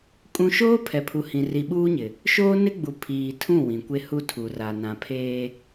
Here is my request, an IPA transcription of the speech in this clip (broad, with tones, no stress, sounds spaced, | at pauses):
kʼ ũ˦ ʃ oː˦ pʰ ɛ˨ pʰ u˨ h ĩ˨ r i˨ ɓ uː˦ ɲ ɪ˨ | ʃ oː˦ n ɪ˦ ɡ͡b u˨ pʰ iː˨ tʰ ũ˦˨ w ĩ˨ kʷ e˦ h u˦ tʰ u˨ r a˨ n ã˨ pʰ eː˦